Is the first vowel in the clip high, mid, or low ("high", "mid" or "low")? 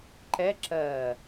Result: mid